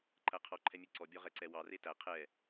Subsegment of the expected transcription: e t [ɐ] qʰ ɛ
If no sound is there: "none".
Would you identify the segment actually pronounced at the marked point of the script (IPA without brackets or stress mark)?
æ